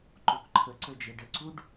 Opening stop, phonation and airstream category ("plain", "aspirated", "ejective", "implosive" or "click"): click